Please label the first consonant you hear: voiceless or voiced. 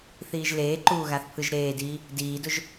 voiceless